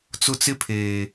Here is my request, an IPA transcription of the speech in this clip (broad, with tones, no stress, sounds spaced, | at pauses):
t͡s ʊ˦ t͡s ɪ˦ pʰ eː˨